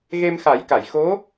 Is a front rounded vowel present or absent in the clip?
absent